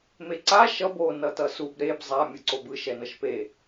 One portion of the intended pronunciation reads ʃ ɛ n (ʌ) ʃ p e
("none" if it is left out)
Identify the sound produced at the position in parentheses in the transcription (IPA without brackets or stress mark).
ʌ